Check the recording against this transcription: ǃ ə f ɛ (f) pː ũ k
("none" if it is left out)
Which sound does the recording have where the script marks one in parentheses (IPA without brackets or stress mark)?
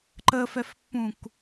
f